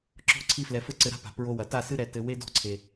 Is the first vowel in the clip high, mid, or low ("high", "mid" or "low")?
mid